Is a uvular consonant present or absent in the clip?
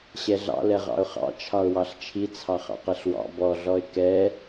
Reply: present